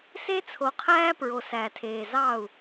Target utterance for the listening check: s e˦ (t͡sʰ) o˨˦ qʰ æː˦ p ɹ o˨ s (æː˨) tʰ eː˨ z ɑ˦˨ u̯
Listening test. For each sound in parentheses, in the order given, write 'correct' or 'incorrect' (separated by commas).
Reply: correct, correct